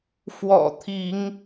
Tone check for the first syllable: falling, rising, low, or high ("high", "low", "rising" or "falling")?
low